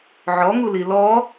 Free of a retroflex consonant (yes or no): yes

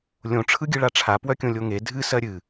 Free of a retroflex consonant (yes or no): no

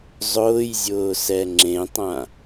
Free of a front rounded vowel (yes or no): yes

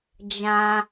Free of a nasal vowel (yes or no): no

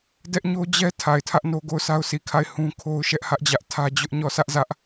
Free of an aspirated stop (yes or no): no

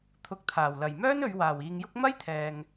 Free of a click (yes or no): yes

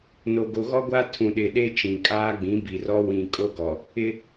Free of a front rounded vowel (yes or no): yes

